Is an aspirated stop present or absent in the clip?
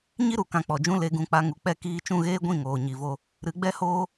absent